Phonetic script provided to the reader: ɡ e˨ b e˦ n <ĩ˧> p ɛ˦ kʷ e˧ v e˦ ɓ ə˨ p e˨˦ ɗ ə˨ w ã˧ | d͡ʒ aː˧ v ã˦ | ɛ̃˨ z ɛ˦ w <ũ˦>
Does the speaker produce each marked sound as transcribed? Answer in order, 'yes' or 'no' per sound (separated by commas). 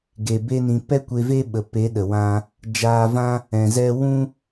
yes, yes